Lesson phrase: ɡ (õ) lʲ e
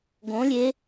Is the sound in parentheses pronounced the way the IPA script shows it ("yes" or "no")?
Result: yes